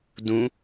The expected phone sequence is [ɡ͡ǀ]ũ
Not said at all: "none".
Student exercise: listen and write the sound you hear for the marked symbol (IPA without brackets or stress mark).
d